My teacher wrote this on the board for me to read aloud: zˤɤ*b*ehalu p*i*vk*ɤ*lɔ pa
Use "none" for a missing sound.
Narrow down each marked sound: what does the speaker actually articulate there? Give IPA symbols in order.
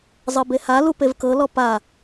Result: b, e, ɤ

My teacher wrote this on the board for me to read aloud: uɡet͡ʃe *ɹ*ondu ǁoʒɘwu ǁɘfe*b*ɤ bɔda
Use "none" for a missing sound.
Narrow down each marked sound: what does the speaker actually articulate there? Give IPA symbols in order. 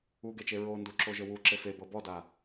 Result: ɹ, b

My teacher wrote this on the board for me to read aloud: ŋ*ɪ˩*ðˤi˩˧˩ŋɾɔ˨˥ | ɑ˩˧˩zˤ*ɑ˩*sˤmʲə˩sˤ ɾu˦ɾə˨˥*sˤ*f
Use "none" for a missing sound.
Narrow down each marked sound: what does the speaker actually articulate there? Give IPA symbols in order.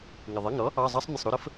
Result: ɪ˩, ɑ˦, none

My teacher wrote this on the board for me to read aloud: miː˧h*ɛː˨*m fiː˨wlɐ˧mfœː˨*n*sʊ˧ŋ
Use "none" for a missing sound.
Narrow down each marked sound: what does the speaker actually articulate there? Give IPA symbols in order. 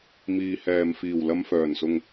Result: ɛː˧, n

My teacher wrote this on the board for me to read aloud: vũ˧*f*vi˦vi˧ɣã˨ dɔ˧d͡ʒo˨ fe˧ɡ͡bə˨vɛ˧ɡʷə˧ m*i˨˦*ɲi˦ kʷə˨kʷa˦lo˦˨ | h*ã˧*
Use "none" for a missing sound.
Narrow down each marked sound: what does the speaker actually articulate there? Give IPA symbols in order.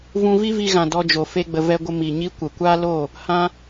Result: none, i˨, ã˧

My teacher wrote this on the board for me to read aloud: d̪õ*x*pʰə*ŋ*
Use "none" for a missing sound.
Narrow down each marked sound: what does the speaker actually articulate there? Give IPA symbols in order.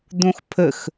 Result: x, x

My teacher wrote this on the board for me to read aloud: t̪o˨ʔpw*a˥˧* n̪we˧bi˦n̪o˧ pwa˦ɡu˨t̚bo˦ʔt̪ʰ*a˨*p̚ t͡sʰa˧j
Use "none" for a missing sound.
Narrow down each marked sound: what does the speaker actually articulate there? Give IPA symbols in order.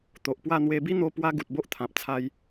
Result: a˥˧, ã˨

